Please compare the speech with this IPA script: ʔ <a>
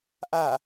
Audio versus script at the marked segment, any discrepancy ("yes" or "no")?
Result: no